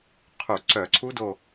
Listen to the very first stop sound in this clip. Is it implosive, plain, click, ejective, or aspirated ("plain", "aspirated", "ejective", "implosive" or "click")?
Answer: aspirated